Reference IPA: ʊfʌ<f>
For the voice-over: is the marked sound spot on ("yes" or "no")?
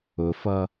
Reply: no